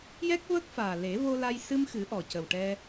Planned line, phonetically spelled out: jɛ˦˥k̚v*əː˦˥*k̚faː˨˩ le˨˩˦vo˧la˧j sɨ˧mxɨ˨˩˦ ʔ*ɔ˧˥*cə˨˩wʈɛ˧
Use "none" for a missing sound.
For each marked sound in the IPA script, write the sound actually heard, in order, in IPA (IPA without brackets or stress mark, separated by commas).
əː˦˥, ɔ˨˩